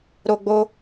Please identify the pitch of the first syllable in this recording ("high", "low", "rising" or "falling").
high